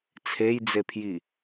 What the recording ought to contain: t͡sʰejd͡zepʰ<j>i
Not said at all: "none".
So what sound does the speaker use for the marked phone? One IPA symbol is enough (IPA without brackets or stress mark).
j